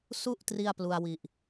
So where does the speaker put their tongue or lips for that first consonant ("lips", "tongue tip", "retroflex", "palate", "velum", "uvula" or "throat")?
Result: tongue tip